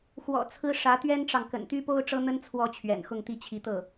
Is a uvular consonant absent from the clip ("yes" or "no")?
yes